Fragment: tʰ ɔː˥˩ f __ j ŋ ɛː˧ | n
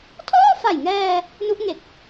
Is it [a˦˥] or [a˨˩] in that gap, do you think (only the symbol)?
a˨˩